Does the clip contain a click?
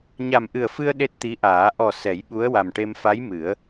no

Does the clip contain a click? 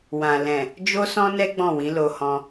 no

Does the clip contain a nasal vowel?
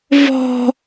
no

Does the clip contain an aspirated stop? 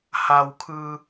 yes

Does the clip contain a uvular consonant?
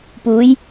no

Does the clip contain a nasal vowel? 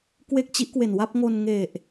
no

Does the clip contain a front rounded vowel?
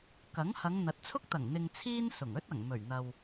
no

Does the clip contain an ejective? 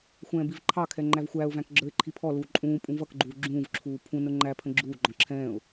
yes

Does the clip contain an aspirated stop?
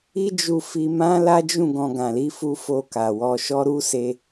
no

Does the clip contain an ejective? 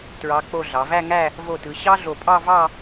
yes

